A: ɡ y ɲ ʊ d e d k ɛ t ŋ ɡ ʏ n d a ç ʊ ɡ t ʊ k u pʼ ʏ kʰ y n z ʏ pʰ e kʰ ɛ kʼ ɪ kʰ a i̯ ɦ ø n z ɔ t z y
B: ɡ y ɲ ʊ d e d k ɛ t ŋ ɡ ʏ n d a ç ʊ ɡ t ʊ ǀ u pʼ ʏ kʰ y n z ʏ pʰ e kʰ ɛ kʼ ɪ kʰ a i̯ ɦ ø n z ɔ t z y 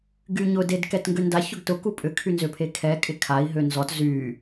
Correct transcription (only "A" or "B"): A